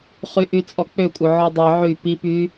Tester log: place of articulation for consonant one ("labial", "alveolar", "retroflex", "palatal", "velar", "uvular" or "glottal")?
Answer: uvular